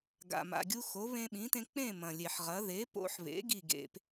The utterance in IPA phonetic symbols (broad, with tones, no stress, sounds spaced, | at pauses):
ɡ a̰˩ m a̰˩ ɡʲ u˧ x o˩˥ β ẽ˧ ɓ ĩ˩˥ t ẽ˧ k͡p ẽ˥˩ m ɐ̃˩ lʲ e˩ ħ ʁ ɐ˩˥ ð e˩˥ p o̰˧ ħ β ḛ˩˥ ɡ i˥˩ ɡ ḛ˧ p